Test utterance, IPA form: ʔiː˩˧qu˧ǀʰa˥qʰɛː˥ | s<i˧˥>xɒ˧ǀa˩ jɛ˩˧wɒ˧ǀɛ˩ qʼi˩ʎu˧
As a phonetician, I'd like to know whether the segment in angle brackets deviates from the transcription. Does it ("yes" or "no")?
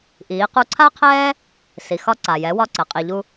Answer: yes